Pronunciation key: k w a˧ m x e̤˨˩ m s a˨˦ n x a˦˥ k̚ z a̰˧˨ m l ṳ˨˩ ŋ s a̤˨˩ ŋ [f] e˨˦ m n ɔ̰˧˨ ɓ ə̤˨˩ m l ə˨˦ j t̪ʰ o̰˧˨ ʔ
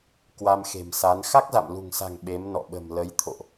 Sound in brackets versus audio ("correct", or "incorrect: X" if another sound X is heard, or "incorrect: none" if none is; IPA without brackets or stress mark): incorrect: ɓ